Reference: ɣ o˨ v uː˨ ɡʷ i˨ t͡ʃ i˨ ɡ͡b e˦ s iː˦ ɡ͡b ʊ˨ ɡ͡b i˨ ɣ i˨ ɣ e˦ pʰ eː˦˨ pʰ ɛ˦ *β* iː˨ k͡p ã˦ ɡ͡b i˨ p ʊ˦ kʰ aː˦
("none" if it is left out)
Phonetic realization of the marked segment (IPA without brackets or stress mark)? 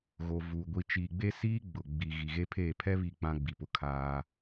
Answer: β